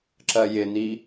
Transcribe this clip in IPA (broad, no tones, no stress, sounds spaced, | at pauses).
ǁ ɜ j ɪ n̪ i